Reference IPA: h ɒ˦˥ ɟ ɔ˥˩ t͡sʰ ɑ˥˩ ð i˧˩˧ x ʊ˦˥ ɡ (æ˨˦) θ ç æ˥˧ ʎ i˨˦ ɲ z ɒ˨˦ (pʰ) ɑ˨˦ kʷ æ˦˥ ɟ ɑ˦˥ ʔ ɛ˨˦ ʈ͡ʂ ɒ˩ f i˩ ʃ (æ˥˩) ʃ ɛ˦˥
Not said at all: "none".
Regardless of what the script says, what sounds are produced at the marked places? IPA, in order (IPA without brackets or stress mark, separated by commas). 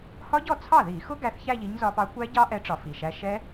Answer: æ˨˦, p, æ˨˦